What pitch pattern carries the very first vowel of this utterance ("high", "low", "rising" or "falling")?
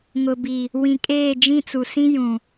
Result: low